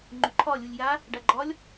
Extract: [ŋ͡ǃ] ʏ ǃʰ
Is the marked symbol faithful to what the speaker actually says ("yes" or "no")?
yes